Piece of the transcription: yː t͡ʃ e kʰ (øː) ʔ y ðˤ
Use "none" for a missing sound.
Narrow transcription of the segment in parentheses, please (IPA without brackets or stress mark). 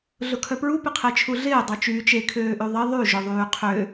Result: øː